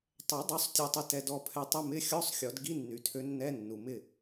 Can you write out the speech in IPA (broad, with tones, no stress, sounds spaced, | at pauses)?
tˤ ɛ˨˩˦ dˤ ø˨˥ sˤ tʲ o˧ tˤ i˧ t ɛ˧ d ɔ˥˩ pʰ ɛ˧ tˤ ɪ˧˥˧ m ɪ˧˥˧ xʲ ɔ˧˥˧ sˤ xʲ ɔ˨˩˦ d ɡ i˧˥˧ nː y˩ tʰ ø˨˥ nː ɛ˧˥˧ nː u˩ m ɪ˥˩